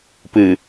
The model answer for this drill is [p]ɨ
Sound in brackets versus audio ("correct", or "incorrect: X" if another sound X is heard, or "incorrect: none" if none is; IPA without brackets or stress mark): correct